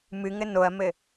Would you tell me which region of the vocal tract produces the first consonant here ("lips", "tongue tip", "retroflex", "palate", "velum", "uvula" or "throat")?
lips